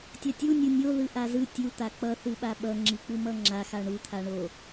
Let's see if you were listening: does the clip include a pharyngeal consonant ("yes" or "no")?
no